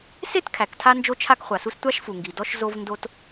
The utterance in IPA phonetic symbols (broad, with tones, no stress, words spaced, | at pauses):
se˥t kʰæ˩ktʰa˥ nd͡ʒo˥t͡ʃʰa˥kχʷa˩su˥s tʷa˥ʃfu˩ ŋɡi˩ dɔ˥ʃ zo˥vndo˥t